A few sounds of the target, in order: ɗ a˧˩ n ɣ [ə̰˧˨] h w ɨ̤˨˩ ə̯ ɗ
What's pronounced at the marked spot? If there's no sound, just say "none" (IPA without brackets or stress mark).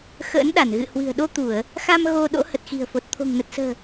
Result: ɨ̰˧˨